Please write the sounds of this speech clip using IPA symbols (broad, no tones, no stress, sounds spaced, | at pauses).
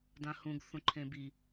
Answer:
d ã h ũ ɡ θ ũ ǃʰ ẽ b i